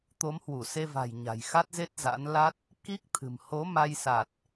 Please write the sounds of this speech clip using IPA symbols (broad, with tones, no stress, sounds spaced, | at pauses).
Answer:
t̪ o˨˦ m h w u˧˩ s e˧ v a̤˨˩ j ɲ a̤˨˩ j x a˦˥ t̚ z e˦˥ t̚ z a̰˧˥ n l a˦˥ t̚ | k i˦˥ k̚ t̪ʰ ɨ̤˨˩ m h o˨˦ m a˧ j s a˨˩ t̚